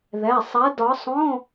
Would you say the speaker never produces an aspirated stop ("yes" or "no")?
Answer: yes